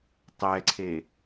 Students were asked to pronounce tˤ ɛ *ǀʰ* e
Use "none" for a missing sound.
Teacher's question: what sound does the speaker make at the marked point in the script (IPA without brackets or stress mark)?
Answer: ǀʰ